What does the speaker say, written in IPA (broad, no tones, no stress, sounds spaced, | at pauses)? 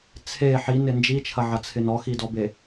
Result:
t͡sʰ e ħ i n ɪ n d͡ʒ i t͡ʃʰ ɐ ʕ ɐ t͡sʰ ɪ n ɔ x i d ɔ b e